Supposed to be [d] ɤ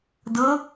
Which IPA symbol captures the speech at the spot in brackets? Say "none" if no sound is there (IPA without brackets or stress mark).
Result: d